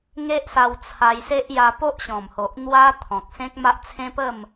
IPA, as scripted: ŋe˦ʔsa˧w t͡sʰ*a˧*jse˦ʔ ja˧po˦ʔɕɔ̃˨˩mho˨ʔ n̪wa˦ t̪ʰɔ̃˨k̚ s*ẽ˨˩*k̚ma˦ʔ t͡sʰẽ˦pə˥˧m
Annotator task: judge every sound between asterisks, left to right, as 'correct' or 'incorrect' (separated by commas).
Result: correct, incorrect